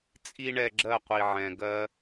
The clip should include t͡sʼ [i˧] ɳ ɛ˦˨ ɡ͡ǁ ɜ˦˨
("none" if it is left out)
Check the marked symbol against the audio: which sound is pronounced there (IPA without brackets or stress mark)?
i˦